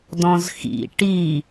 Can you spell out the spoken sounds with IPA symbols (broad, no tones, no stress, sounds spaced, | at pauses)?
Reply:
d ɔ̃ z x ḭ ʈ i